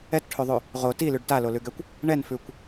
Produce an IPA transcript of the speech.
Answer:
ɛ t ʈʰ ʉ ðˤ ʉ | ʁ o t i l ʉ ɖ t a l o l ʉ ɡ ɛ kʷ | ɳ ɛ n f ʉ kʷ

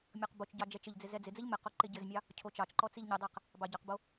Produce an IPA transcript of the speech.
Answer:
mʲ ɔ q b o t͡ʃ ɟ ɑ d͡ʒ ɛ t͡ʃ ɘ ʎ d͡z ɪ z ɛ d͡z ɪ d͡z ɘ ʎ m ɪ q o ǃ ɪ ɟ ɘ z mʲ ɑ | cʰ o t͡ʃ ɑ t͡ʃ ǃ ɔ t͡s i ʎ ɲ ɘ dˤ ɛ q | b ɑ ɟ ɑ q b o

